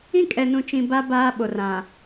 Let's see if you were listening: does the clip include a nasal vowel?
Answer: yes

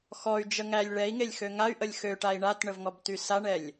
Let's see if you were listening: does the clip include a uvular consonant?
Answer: no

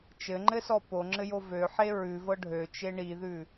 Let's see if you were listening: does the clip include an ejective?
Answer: no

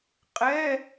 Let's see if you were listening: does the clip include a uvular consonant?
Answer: yes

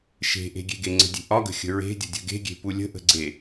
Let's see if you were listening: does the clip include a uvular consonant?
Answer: no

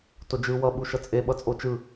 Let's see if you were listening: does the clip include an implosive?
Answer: yes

